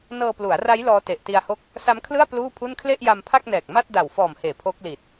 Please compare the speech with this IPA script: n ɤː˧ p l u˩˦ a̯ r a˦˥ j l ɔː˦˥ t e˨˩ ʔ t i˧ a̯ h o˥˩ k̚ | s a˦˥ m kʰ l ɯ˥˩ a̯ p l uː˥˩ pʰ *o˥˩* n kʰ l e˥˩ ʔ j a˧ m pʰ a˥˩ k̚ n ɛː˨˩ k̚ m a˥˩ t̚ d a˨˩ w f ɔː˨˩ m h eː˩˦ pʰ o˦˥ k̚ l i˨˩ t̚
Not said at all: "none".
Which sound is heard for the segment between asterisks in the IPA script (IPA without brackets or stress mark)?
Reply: u˥˩